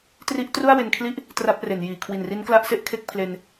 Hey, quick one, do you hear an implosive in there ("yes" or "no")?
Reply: no